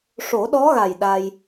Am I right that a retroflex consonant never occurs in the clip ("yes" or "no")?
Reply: no